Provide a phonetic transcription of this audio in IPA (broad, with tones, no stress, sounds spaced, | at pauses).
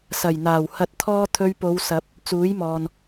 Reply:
s ɐ˨˩ j n̪ aː˨˩ w h ɐ˧ t̚ t̪ʰ ɔː˥ t̪ʰ ɵ˧ ɥ p o˨˧ w s ɐ˨˥ p̚ | t͡s uː˨˥ j m ɔː˨ n